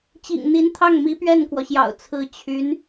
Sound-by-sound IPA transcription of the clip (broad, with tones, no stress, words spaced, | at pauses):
t͡ɕḭ˨˩ŋn̪i˧˥nt̪ʰɑ˥˩ŋmi˧˥ pɥɛ˥˩nkwɔ˩ɕjɑ̰˨˩ʊ̯ t͡sʰɹ̩˧˥t͡ɕʰy˧˥n